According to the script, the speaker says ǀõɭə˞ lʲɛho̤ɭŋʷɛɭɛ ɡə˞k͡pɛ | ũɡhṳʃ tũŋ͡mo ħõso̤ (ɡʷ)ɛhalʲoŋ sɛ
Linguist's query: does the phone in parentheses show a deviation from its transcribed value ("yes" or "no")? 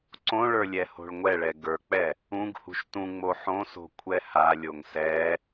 yes